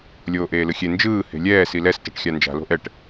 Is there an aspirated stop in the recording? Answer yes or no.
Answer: no